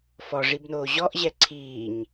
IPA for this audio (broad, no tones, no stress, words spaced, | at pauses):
fɔʐibnoː ʑɔʔʑɛ ǀʰiːɲ